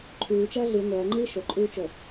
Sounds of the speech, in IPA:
ǃʰ ʉː t͡ʃ ɐː ɮ ɨ ŋʷ ɐː ŋ͡ǃ iː ʃ o ǃʼ ʉː t͡ʃ o

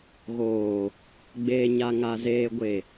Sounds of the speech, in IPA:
ɣ oː˨ | ɡ͡b eː˨ ɲ a˨ ŋ a˨ z eː˨ ɡʷ e˨

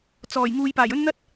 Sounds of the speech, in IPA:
t͡s ɔː˨˩ j ŋ uː˨ j p aː˨˩ j ɵ˥ n n̪ ɐ˥ t̚

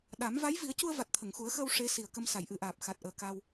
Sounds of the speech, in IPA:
ɗ a˨˩˦ m v a˧˥ j v i˨˩˦ ə̯ c u˧ ə̯ v a˨˩ t̚ t̪ʰ ə˨˩˨ ŋ x u˨˩˦ ə̯ x əː˧ w ʂ e˧˥ s i˨˩ ə̯ k ə˧ m s a˨˩˨ j ʔ ɨ˨˩˨ ʔ aː˨˩ p̚ x a˨˩ t̚ ʔ əː˨˩ k a˧ w

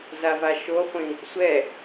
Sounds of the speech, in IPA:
z a v a ʃ o χʷ ĩ | sʷ ɛ

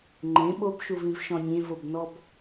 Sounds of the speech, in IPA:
ŋ͡ǃ ẽ ɓ o b ʃ u v ĩ v ʃ ɔ̃ nʲ ẽ v o b n ɔ b

